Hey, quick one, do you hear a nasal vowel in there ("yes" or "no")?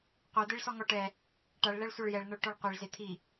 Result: no